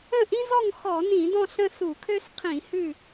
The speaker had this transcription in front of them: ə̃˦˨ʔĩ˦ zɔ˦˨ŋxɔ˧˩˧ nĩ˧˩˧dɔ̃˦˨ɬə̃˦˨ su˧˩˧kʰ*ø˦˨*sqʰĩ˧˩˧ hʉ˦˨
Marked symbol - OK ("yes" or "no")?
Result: no